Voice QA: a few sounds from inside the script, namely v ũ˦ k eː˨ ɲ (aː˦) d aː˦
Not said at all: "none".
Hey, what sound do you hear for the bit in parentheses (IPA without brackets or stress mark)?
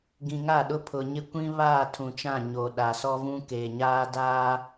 aː˦